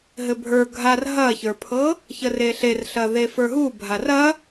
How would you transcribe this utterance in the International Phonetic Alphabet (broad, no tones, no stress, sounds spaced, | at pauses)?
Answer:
ɦ ɘ bʱ ə˞ ɡʱ a r ɦ ɐ ç ə˞ pʰ ɤ | ç ə r e ɬ e r ɬ ɐ ð e f ə˞ ɦ u bʱ a r ɐ